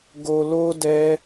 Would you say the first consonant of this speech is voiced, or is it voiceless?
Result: voiced